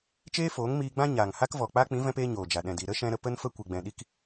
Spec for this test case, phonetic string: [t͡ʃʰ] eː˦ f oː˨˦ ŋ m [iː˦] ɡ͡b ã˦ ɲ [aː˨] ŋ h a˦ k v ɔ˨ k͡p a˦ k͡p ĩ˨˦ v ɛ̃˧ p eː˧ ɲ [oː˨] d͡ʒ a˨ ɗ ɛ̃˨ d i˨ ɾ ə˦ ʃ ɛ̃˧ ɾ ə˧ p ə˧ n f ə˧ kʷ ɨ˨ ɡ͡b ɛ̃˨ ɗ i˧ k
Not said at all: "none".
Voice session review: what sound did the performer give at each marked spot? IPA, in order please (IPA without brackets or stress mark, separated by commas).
t͡ʃ, iː˧, aː˨, oː˨